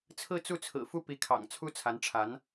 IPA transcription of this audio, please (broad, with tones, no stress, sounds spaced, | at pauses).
t͡sʰ ɹ̩˥˧ t͡s u˥˩ t͡sʰ ɹ̩˨˩ f u˥˩ p i˧˥ kʰ ɑ̰˨˩ ŋ t͡sʰ u˥ t͡sʰ a˧˥ n ʈ͡ʂʰ a˧˥ n